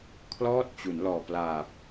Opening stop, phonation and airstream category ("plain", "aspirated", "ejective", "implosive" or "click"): aspirated